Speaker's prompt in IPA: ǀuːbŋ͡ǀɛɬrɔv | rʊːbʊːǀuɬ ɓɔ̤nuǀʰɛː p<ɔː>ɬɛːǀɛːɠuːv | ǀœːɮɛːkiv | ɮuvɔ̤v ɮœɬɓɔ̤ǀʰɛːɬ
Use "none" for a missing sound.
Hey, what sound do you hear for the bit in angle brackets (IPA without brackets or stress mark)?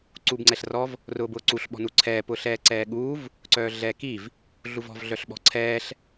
ʊː